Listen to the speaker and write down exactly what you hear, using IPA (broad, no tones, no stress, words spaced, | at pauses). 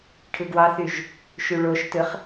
ʈʰɯɡwɑθyʒ | ʃyɭoʃtɯχ